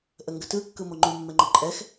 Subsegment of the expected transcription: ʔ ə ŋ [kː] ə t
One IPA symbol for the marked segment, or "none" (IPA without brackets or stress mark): ɡ